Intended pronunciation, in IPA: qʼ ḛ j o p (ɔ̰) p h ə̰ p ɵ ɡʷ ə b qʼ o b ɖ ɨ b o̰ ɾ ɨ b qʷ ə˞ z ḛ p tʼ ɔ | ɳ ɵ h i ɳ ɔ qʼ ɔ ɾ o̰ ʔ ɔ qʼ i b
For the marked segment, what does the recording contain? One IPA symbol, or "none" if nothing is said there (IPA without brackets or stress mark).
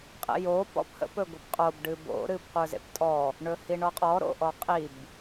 ɔ̰